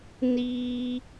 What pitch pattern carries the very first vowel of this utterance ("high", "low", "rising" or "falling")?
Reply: high